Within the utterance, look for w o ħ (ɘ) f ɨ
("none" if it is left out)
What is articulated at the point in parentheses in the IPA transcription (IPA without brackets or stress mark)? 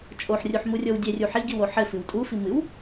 ɘ